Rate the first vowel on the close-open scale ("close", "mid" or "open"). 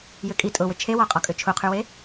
close